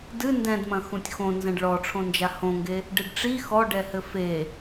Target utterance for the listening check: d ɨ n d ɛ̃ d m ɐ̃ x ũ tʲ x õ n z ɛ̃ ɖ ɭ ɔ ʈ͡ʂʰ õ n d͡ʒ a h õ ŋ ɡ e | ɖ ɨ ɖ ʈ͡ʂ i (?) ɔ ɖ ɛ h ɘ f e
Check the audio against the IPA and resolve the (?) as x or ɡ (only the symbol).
x